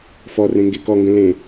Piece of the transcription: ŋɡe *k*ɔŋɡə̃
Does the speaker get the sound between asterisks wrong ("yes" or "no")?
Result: no